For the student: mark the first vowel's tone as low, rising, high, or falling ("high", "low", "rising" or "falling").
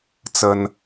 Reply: high